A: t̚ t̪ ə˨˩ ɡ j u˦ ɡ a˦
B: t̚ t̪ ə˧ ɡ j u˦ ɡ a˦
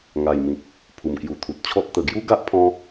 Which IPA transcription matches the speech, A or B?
A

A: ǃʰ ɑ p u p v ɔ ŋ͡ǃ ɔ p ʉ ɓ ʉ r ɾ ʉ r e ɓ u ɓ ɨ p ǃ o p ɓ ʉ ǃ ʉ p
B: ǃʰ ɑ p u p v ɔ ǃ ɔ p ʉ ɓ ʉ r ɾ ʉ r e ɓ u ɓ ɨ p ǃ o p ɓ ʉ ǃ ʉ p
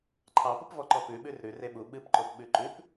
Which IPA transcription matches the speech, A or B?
B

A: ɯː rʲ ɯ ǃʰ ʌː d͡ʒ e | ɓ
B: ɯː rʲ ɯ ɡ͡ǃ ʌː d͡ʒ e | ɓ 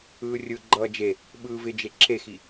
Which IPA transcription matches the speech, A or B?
B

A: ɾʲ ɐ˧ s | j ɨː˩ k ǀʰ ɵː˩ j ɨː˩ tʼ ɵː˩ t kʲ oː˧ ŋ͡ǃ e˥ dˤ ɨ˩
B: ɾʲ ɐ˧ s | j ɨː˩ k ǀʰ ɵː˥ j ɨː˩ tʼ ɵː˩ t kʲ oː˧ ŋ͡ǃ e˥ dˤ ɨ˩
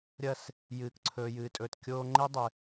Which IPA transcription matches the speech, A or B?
A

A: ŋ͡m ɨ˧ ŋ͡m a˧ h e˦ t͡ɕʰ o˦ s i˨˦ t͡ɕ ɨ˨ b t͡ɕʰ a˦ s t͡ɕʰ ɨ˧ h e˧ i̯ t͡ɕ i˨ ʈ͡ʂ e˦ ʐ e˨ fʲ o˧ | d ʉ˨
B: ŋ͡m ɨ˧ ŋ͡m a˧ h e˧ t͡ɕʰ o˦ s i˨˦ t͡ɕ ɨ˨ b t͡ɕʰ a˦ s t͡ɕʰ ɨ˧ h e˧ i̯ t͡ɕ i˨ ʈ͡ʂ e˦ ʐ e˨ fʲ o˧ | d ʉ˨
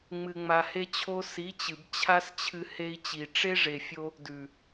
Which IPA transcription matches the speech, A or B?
A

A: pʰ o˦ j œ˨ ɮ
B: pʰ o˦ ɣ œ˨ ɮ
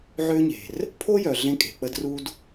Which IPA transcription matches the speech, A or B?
A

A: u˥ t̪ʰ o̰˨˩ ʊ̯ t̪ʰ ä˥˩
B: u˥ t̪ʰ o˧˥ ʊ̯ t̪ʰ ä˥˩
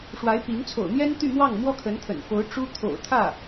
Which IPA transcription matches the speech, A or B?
A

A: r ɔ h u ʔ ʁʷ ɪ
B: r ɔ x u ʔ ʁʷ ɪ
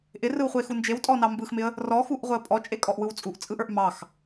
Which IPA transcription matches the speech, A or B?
B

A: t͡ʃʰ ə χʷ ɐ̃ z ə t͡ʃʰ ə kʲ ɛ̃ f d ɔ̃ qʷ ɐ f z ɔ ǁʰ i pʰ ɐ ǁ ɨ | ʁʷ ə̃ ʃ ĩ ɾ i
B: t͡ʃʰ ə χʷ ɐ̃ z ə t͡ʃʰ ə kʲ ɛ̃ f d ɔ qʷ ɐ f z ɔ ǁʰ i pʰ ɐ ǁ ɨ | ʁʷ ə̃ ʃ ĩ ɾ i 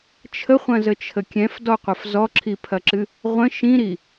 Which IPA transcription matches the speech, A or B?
B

